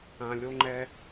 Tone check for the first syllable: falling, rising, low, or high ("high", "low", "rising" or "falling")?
low